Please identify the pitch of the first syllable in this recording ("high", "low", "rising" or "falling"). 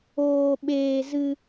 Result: high